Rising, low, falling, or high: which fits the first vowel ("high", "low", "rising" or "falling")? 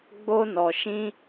high